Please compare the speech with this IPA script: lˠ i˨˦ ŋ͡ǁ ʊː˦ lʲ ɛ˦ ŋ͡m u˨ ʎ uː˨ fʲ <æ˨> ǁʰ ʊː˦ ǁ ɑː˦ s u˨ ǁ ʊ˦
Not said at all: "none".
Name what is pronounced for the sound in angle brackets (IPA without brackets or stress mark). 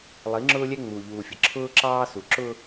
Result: ə˨